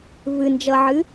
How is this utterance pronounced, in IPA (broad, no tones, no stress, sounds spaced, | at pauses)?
v ɨ n d͡ʒ ʌ ʕ ɨ